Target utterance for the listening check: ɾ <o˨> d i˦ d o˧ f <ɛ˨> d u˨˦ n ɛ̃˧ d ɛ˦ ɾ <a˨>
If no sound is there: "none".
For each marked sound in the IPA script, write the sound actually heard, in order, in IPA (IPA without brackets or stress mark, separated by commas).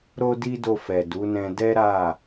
o˦, ɛ˨, a˦˨